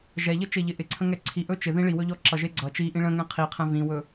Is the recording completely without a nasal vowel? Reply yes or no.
no